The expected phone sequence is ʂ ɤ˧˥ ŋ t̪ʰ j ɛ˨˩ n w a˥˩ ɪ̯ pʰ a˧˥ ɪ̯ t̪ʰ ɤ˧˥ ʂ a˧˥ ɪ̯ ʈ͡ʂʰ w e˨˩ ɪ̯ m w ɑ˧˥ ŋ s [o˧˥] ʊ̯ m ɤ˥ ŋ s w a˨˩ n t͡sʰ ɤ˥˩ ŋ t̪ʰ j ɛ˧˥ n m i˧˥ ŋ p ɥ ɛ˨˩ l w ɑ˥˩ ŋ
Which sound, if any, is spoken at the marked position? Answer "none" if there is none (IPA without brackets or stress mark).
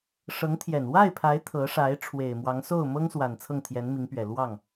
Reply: o˥˩